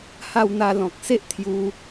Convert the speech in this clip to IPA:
h a˧ w n̪ a˧ l ɔ̃˨ k̚ s e˦ ʔ t̪ʰ j u˧

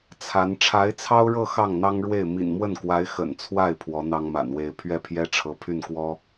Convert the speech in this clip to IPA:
t͡sʰ a˧˥ n ʈ͡ʂʰ a˧˥ ɪ̯ t͡sʰ ɑ˥ ʊ̯ ɻ ɤ˥˧ x ɑ˥˩ ŋ n̪ ɑ˥ ŋ ɻ w e˥˩ ɪ̯ m ḭ˨˩ n m w ə˥˩ n k w a˧˥ ɪ̯ x ə̰˨˩ n t͡sʰ w a˥˩ ɪ̯ pʰ w ɔ˧˥ n̪ ɑ˥ ŋ m a̰˨˩ n w e˥ ɪ̯ pʰ ɥ ɛ˥˩ pʰ j ɛ˥ ʈ͡ʂʰ ɤ˧˥ pʰ y˥˩ n k w ɔ˥

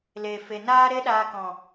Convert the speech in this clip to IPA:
l e˨ f e˨ n aː˦ ɾ e˦ ɗ aː˧ k ɔ̃˨

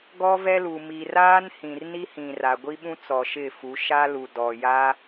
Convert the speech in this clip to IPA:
ɡ ɔ˦ v ɛ˦ l u˨ m i˨ r aː˦ n h ĩ˨ r n i˦ h ĩ˨ r a˨ ɡʷ i˦ ɓ ũ˦ t͡s ɔ˨ ʃ ɪ˦˨ f u˨˦ ʃ a˦ l u˨ d ɔ˨ j a˦

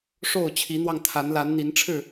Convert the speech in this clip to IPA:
ʂ o˥˨ ʊ̯ t͡ɕʰ i˨˦ n̪ w ɑ˧ ŋ t̪ʰ a˨˦ n l a˨˦ n n̪ i˨˦ n ʈ͡ʂʰ ɻ̩˥˨

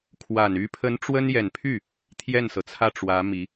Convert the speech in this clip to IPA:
kʰ w a˨˩ n y˧˥ pʰ ə˧˥ n ʈ͡ʂ w ə˥ n j ɛ˨˩ n pʰ y˥˩ | t̪ʰ j ɛ˥˩ n s ɤ˩ t͡sʰ ä˥˩ ʈ͡ʂ w ä˧˥ m i˧˥

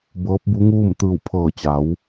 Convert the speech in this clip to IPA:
b ɤː˧˥ p̚ b u˧˥ ŋ uː˥˨ m t̪ ɯː˧˩ w pʰ ɤː˧˩ t͡ɕ a˩˧ w

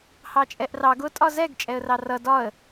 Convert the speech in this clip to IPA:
h ɑ t͡ʃʼ ɛ ʔ r ɑ ɡ ʊ tʼ ɒ z ɛ ɡ t͡ʃʼ ɛ ə̯ r ɑ r ʌ d ɒ ə̯

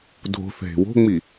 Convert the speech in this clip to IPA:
dʱ o̤ θ ɦ e̤ w o̤ ŋ͡m i

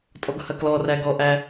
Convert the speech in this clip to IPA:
tʼ ɔ ɡ h ɐ k l ɔ r æ ɡ ɔ ʔ æ

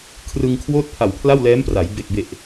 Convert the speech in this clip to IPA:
kʰ r ɯ˧ ŋ kʰ w oː˥˩ t̚ pʰ a˨˩ w pʰ l a˥˩ w l ɛː˦˥ m p r a˩˦ j b e˨˩ k̚ b e˨˩ ʔ

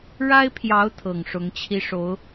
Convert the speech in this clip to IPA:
ɻ a˥ ɪ̯ pʰ j ɑ˧˥ ʊ̯ t̪ʰ ɤ˨˩ ŋ ʂ ʊ˧˥ ŋ t͡ɕʰ i˥ ʂ o˧˥ ʊ̯

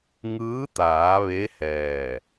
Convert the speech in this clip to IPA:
ŋ ɯː˧˥ t̪ aː˩˧ ʋ e˧˥ h ɛː˧˩

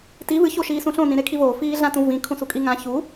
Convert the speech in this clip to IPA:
t i v ɨ ç o ʃ iː s ũ ɬ õ n ĩ ɾ e kʰ i v oː f iː ɮ ã t ũ v ĩ kʰ ũ s u kʼ i ŋ ã ç u

